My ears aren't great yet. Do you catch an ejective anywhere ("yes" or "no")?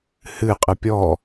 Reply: yes